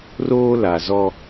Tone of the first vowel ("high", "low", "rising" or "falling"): high